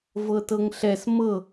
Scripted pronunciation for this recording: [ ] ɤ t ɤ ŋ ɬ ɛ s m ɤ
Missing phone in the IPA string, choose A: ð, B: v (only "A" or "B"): B